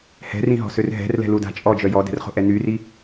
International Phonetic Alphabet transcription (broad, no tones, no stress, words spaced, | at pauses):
hɛ̤rĩɦɔ̤sør ɦɛ̤rlɛ̤luda̤ t͡ʃʼɔd͡ʒœ jɔdɛ̤rχo̤ʔɛ nyri